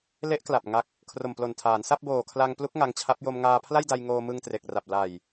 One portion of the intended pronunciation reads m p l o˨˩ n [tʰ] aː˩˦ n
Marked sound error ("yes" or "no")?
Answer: no